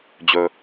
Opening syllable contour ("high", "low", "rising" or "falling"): low